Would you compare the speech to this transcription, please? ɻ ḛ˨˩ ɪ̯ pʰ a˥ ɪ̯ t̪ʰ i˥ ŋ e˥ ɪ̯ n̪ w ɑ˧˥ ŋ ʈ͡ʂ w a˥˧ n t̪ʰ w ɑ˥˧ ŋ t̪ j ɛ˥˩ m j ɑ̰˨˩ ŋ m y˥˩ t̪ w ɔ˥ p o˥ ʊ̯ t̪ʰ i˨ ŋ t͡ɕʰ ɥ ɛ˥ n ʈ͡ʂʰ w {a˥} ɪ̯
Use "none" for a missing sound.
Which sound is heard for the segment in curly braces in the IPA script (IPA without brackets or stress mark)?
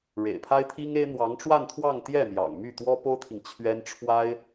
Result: a˥